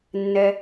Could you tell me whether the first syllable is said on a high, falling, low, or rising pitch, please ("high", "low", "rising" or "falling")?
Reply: low